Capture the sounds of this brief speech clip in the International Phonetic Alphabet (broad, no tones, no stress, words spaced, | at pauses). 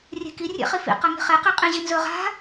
rʲe̤ki rʲḛχifḭ qɐŋi̤χe qeqʼĩʑinzɵ ʁa̤